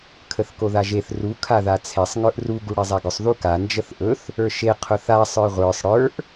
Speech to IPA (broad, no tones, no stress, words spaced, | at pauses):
kʰəθkoðaʒeθ ru kʰaðat͡sʰesˤ ŋə˞ʔru ɡuɽezˤaɡʊsˤ ðuka nd͡ʒəθʔɵθ | ə˞ʃe qʰʊθa sˤə˞ʁʷə˞sˤ ɽə˞ʔ